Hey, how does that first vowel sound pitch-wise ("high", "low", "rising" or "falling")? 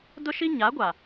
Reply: high